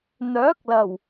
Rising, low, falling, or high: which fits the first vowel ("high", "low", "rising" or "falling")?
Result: rising